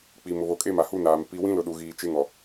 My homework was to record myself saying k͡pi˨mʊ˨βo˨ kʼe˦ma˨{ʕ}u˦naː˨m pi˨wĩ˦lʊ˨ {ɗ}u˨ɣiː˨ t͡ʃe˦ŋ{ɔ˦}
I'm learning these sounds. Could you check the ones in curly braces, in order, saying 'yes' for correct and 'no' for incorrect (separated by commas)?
no, yes, no